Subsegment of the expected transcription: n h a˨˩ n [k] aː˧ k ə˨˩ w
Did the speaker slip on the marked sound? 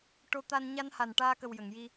yes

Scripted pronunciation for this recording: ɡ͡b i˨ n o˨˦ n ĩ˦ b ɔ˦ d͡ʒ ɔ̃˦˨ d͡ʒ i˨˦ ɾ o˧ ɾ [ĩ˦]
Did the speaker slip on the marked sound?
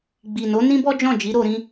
no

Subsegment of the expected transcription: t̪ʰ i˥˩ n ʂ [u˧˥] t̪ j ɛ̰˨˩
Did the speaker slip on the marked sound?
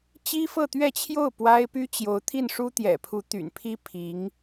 yes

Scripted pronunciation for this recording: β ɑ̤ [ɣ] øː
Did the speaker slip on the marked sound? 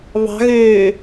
no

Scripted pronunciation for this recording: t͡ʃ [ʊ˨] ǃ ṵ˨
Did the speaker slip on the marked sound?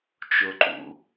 no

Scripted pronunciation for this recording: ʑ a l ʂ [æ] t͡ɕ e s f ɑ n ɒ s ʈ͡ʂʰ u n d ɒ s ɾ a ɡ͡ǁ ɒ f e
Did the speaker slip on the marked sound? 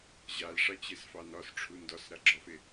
yes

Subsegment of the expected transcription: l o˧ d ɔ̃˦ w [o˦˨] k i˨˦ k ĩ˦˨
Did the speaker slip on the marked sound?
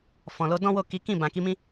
no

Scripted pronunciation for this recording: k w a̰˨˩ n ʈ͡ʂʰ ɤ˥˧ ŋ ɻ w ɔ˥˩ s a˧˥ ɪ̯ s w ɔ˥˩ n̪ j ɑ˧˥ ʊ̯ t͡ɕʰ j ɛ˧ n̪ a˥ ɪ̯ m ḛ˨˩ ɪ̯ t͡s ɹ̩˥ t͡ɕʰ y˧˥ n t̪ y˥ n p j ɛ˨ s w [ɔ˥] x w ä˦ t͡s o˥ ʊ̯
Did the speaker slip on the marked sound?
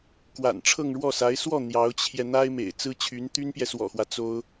yes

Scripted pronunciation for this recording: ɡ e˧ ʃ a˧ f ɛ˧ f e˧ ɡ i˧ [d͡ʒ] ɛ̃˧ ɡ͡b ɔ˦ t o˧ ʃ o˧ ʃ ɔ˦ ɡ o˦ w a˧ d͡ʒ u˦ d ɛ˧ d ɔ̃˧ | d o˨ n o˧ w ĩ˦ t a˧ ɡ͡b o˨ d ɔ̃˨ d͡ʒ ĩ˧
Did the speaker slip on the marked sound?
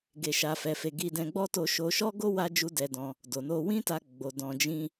yes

